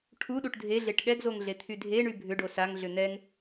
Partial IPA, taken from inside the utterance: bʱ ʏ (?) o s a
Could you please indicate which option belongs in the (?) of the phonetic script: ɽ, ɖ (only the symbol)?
ɖ